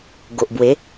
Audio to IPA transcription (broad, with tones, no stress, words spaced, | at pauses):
ɡo˨ʔbwe˨˦